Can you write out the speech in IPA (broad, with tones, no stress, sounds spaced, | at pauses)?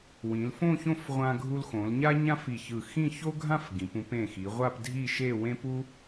w ĩ˩˧ l f õ˥˧ ç õ˥˧ f ʁʷ ã˧ ɡʱ u˧ l x õ˩˧ l ɲ a˥ ɲ ã˥ f i˧˩ ç ɯ˧˩ x ĩ˥˧ ç o˥ ɡʱ ã˥˧ f ɡ ĩ˩˧ p ũ˧ p ẽ˧˩ x i˩˧ ʁʷ a˥˧ p dʱ i˥˧ ʃ e˥˧ w ẽ˥ p u˥